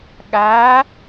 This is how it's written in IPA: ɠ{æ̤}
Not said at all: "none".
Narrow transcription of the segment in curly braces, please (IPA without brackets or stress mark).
æ